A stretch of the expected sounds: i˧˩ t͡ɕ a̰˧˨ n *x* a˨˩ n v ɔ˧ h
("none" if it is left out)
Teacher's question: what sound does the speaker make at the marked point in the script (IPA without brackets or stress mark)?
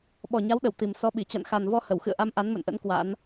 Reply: x